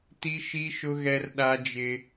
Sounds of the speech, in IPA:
ti˦ʃi˦ʃʊ˦ ɣɛ˦rɗa˦d͡ʒɪ˦

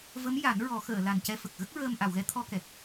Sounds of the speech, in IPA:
və˧˥m ja˨˩˦n ɹɔ˨˩˦xəː˨˩˨la˨˩n cɛ˧fə˨˩k̚ ɣə˦˥k̚ɹəː˧m ʔa˨˩˨wɣɛ˧˥t̪ʰɔ˧kɛ˨˩k̚

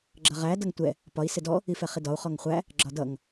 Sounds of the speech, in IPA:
ɡ͡ǁʌʁæ dʌŋtʷɛ | pɒi̯ sɪdɔ | ifɛχidɒu̯ χɔŋχʷæ | ɡ͡ǁɒdʌŋ

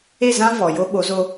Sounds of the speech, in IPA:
e˦˨zã˦ vɔ˨ jo˦ɓo˨˦zo˦

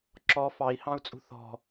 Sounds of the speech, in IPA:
ǁɔ fɑi̯hɑ̃u̯t͡sʼṳ θɔ̤

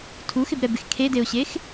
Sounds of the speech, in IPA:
tʰuxɪbɾɛbɪx kʰedeʊ̯ɕex

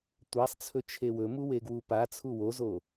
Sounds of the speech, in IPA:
tʷasˤt͡sʰɵ t͡ʃʰewɵmu weɡwupat͡sʰu wozo

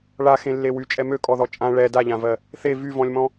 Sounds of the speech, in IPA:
ɭaxẽlːe wyt͡ʃʼɛ møkʼɔðɔ t͡ʃʼã ɭɛ daʎãvɜ | θe vyvɔ̃lʲmɔ̃

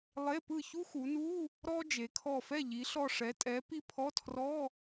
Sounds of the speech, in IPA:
lˠe˧˥˧pɯ˥˨ çu˥xu˩˧nu˧˥˧ | ɾɔ˥ d͡ʒe˩˧kʰɔ˧˩fɛ˥˨ ʎi˨˥ɬɔ˥˨ ʂɛ˨˥tʼɛ˨˥pi˥ pʰɔ˧˥˧tʰrɔ˧˥˧

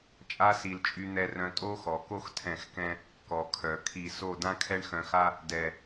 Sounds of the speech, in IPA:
t͡ʃʼa˧si˨l t͡ʃʼy˧n̪ɛ˧rœ̃˧ tʼo˦xɔ˨ ko˦x tʰɛ̃˦˨xkɛ̃˦ | kɔ˨kʰœ˨ kʰi˨so˦˨ dã˦kʰɛ˦ɳxœ̃˧xa˦ | dɛ˨

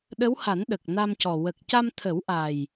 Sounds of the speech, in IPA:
ɗə˧˥wha˨˩˦n ɗə˨˩k̚na˧mcɔ˨˩ wə˨˩k̚ca˧mt̪ʰə˨˩˦wʔa˨˩j

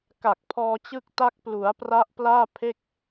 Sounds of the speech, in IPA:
ka˨˩k̚pʰɔː˧t͡ɕɯ˦˥k̚ta˦˥k̚ plu˩˦a̯pra˦˥ʔplaː˥˩ pʰe˥˩k̚

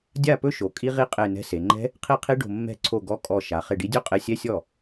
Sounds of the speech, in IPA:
dʲa˥˩pɵ˦˥ʃo˩˧ kʼi˦˥ʁi˦˥ qʼe˧˩nɛ̤˨˥se˩˧ŋ͡ǃɛ̤˦˥ | qʰi˥˩qʰi˦˥ ɖo̤˧˩ mːɛ̤˥˩ǀʰo˥˩ɡɔ˧˥˧ kʼɔ˧˩ ʃa˩˧ χe˧˩ɖi˨˥dʲo˦˥ qʼe˨˥sʲɛ˧˥˧ sʲɔ˥˩

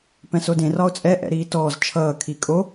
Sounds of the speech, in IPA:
pɛ̃sodẽ rɒo̯t͡sʼɛ ʔɛ̰ɾiːtɔːz t͡ʃʰʌː kʰikʼo

